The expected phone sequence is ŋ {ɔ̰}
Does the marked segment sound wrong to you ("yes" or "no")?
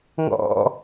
no